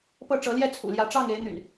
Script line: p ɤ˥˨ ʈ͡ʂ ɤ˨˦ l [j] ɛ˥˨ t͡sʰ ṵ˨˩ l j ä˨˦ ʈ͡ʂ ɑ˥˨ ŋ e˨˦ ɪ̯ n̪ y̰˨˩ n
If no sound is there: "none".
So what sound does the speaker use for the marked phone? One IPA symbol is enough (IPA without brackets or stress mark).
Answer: j